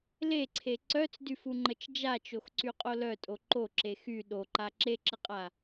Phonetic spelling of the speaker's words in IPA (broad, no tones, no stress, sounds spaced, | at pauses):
l e ǀʰ e ǀ œ t͡s d y f u ŋ͡ǃ ə t͡ʃ d͡ʒ a t͡ʃ o x ǀ y qʼ o l œ tʼ o ǃ o ǁ e x y ɗ o ǃ a ǁ e ǁ ə qʼ a